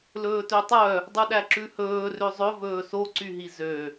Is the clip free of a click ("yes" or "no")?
no